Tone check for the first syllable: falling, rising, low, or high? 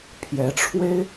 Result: rising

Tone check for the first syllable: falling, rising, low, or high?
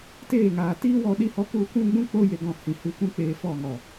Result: falling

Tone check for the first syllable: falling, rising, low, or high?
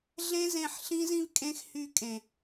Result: high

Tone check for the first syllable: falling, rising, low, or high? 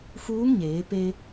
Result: rising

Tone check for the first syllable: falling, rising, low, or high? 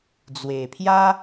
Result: low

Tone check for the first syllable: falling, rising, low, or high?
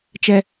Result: high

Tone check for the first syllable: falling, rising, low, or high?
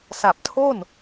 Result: low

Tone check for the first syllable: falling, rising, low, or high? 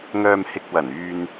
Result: low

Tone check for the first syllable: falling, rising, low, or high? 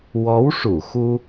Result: rising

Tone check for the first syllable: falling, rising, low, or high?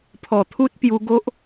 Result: low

